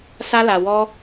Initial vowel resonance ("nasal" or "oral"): oral